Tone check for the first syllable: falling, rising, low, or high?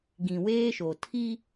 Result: low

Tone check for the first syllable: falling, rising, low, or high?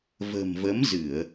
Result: low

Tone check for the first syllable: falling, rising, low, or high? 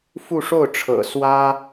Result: falling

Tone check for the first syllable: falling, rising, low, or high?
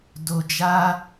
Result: low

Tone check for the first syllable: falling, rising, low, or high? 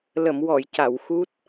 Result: low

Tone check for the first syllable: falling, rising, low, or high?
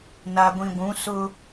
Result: low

